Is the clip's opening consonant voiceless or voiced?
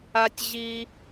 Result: voiceless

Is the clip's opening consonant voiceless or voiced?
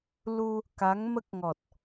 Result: voiced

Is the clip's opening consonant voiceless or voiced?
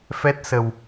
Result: voiceless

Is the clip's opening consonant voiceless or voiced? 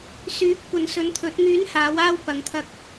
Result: voiceless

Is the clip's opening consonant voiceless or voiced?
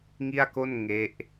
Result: voiced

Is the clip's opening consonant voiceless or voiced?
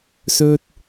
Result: voiceless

